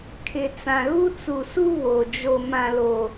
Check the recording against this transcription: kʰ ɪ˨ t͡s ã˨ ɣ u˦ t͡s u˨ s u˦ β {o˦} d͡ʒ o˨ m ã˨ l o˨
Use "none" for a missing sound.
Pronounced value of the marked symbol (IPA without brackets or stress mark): o˨